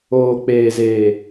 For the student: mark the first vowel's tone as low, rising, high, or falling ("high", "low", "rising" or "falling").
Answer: low